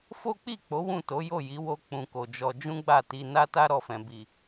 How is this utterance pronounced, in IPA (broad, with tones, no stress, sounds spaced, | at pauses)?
f o˦ k͡p i˦˨ k͡p o˨˦ w ũ˦˨ t o˨˦ j o˦˨ j i˨˦ w o˦ k͡p ũ˧ k o˨ d͡ʒ ɔ˧ d͡ʒ ũ˦ ɡ͡b a˦˨ t i˧ n a˦ t a˦ ɾ ɔ˦˨ f ɛ̃˧ b i˨